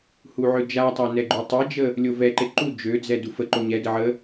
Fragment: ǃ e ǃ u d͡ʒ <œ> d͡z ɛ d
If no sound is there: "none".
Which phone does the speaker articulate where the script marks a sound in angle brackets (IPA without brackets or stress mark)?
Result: ø